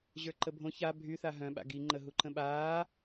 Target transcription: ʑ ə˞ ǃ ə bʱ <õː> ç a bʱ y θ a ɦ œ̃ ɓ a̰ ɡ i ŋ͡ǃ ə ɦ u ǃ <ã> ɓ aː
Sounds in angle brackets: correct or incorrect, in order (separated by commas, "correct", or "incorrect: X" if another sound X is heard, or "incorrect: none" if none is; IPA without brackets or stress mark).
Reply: incorrect: õ, incorrect: ə̃